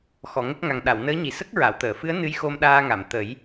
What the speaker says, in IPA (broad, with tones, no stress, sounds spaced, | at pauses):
x ɔ˨˩˨ ŋ ə˦˥ k̚ ŋ a˨˩ ŋ ɗ a˨˩˨ w n əː˧˥ ɲ i˨˩ s ə˦˥ k̚ ɹ a˨˩˨ w t̪ əː˨˩˨ f ɨ˧˥ ə̯ n ɨ˧˥ j x o˧ m ɗ aː˧ ŋ a˨˩˨ m t̪ ə˨˩˦ j